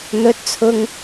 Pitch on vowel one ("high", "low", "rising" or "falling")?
high